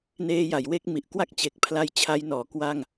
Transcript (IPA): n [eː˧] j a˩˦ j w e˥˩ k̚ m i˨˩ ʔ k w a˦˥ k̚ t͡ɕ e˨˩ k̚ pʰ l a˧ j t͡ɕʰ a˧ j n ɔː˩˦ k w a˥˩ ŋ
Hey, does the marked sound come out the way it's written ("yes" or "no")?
yes